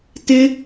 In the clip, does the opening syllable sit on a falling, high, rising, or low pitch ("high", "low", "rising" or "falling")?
high